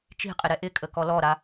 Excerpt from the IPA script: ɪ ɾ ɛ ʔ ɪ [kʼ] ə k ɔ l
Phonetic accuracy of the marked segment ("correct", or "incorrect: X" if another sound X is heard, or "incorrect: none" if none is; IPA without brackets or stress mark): correct